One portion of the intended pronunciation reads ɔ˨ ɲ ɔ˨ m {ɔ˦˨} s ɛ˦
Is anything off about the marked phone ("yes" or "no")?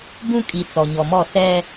no